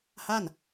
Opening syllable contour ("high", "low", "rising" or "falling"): falling